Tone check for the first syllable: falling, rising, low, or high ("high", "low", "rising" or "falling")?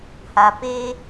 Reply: high